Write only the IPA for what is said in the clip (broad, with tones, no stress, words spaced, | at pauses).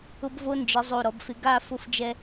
ʊ˧bvo˧nd͡ʒɪ˩˧ zˤo˧˩ɾɔ˩˧bfɪ˧ ɡa˥˧ fʊ˧fd͡ʒɛ˧